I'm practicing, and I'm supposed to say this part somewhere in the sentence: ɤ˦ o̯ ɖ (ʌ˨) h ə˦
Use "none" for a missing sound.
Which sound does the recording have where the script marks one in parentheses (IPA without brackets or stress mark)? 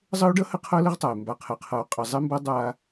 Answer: ʌ˦